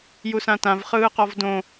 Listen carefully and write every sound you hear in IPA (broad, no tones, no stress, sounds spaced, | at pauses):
j u s ã t ã v χ ɯː q ɔ v d õ